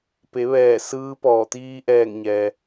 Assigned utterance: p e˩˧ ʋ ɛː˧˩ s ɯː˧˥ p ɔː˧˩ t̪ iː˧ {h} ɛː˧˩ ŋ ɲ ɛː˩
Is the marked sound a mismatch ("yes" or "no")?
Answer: yes